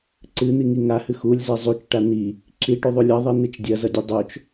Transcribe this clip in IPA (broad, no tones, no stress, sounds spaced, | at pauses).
ǀ ɨ n̪ i ŋ i ŋ a h ɨ x u lʲ z e zˤ u t͡ʃ ʈ a n̪ i | ǁ i ʈ ʉ ðˤ u lʲ ɐ ðˤ i n̪ ɨ t͡ʃ dʲ ɐ z ɐ dʲ ʉ dˤ o t͡ʃ